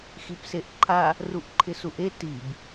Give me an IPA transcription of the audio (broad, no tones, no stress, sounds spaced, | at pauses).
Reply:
x i p s e ʔ ǃʰ a | r u ʔ ǃʰ ɪ s u ʔ e t i b